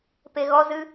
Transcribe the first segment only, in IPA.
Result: p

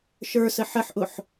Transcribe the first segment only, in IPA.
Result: ʃ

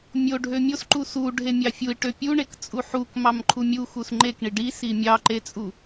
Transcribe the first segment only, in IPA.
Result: mʲ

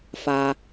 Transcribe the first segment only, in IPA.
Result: f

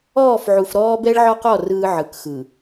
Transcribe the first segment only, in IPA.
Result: ɔː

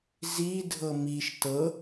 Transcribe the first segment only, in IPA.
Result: z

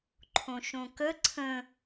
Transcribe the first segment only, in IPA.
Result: ǃʰ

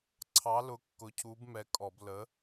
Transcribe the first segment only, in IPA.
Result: ǀʰ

